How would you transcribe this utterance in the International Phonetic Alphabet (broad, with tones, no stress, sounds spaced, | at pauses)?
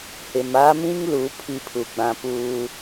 h ɪ˨ m a˦ m ĩ˦ ŋ l u˨˦ pʰ i˦ pʰ u˨ ɡ͡b ã˦ p uː˦